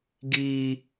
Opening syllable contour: high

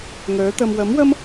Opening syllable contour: rising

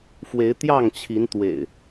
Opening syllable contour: rising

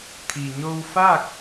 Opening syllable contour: low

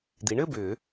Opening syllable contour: rising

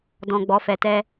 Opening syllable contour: low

